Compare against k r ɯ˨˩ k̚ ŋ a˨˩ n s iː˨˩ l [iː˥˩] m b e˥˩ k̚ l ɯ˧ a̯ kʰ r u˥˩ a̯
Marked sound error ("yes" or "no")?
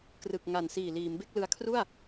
yes